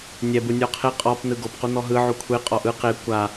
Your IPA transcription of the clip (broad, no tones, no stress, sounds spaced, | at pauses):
nʲ ɛ b ɯ nʲ ɔ qʰ e qʼ ɔ p n ɯ ɡ o p q u n̪ ɔ ɦ ɯ ʕ u kʷʰ e qʼ ɔ ʔ ɯ q e kʷ a